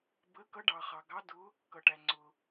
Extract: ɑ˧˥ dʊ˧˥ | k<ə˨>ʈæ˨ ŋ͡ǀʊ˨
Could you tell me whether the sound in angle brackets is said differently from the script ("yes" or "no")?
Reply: yes